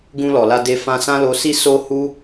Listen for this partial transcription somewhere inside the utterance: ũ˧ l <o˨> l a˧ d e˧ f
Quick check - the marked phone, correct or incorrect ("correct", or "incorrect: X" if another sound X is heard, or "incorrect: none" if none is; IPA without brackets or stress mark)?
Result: incorrect: ɔ˨